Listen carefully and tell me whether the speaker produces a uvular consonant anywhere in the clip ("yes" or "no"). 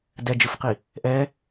yes